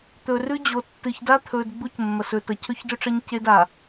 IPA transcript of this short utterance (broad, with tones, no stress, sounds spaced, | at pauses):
t̪ ɵ˨ r ʉ˦ d͡ʑ o˨ tː ɨ˨ ç d a˦ t̪ʰ ɵ˨ d ɡ͡b u˦ c mː ɐ˨ s ɵ˨ t ɐ˨ cʰ ɵ˦ ç d ɵ˦ ʈ͡ʂ ɐ˦ ɲ c e˦ d a˨